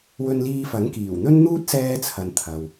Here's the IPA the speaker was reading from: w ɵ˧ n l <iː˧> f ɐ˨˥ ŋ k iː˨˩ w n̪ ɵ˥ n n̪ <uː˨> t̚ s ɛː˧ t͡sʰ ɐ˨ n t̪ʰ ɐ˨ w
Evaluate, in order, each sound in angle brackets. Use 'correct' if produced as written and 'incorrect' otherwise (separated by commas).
correct, incorrect